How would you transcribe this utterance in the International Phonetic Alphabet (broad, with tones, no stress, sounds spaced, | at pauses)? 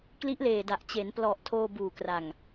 k l i˦˥ ʔ l eː˨˩ d a˨˩ ʔ t͡ɕ e˩˦ n p l ɔ˨˩ ʔ tʰ oː˧ b uː˨˩ k r a˨˩ ŋ